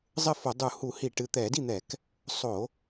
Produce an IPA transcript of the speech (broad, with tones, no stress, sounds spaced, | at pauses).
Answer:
zˤ ɘ˥˩ f o˧˩˧ dˤ u˧˩˧ h u˧˩˧ h i˧˩˧ ʈ ɨ˩˧˩ t̪ ɛ˧˩˧ d i˥˩ n̪ ɛ˧˩˧ k | sˤ o˧˩˧